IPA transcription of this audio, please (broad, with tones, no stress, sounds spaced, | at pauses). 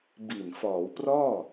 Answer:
b i˨˩ n f ɔː˩˦ w p r ɔː˥˩